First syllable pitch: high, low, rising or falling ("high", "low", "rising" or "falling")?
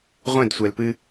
falling